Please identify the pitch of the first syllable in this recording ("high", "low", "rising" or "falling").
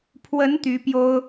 rising